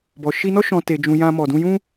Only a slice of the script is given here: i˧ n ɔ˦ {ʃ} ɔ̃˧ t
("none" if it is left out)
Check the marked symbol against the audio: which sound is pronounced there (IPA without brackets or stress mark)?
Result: ʃ